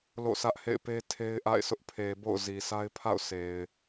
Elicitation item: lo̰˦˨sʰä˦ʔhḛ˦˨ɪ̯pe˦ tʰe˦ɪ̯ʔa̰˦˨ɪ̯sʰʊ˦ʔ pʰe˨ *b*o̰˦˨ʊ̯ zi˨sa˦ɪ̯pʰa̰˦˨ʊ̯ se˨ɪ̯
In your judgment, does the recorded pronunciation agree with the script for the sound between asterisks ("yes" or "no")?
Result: yes